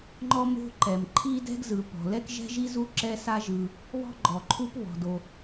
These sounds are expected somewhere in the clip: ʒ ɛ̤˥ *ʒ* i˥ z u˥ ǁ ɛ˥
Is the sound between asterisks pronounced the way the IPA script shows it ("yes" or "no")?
yes